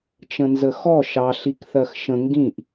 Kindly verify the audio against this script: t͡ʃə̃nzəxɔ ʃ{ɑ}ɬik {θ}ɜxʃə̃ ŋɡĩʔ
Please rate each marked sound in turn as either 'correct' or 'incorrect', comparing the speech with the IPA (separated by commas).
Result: correct, correct